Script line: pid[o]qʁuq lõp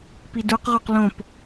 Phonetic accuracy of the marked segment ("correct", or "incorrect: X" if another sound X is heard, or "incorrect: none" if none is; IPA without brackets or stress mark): incorrect: u